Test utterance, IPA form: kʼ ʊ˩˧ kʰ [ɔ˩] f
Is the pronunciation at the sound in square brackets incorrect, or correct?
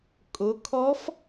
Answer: incorrect